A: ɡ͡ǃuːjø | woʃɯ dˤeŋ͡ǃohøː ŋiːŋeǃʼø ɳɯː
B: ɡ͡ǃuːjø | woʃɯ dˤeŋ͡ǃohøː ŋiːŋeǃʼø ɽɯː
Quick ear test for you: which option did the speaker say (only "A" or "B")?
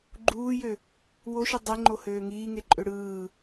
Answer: B